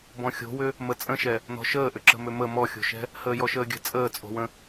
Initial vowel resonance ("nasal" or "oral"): nasal